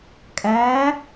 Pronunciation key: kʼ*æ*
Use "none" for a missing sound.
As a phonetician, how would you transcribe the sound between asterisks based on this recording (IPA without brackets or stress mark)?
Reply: æ